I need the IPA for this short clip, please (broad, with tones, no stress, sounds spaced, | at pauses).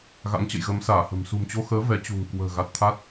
ɣ a̰˧˥ ŋ t͡ɕ ə̰˧˨ j ɣ ə˨˦ m s aː˧˩ h ə̤˨˩ m s ṳ˨˩ m t͡ɕ o˧ x əː˨˦ v ɛ˨˦ t͡ɕ ṳ˨˩ ŋ k w ə̤ː˨˩ ɣ a˨˩ t̚ t̪ʰ a˦˥ t̚